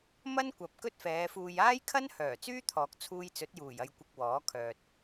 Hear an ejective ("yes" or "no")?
no